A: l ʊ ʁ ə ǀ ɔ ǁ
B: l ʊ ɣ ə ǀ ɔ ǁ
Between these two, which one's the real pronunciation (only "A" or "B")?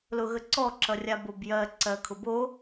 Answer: B